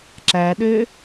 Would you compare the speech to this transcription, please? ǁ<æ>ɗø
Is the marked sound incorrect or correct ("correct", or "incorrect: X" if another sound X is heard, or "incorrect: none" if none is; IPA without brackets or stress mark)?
correct